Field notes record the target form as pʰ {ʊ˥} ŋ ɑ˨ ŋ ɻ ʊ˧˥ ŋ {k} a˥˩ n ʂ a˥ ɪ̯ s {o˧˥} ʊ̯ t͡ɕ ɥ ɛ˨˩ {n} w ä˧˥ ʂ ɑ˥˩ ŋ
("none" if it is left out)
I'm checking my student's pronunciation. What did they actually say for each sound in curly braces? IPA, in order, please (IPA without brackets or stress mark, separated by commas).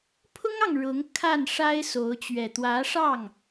ʊ˥, kʰ, o˧˥, t̪